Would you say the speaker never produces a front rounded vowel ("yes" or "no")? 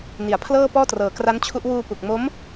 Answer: yes